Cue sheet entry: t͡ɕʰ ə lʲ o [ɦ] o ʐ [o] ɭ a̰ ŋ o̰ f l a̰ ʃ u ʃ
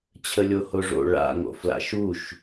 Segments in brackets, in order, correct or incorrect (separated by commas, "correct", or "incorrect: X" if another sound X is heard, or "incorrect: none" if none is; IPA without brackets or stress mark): incorrect: h, incorrect: o̰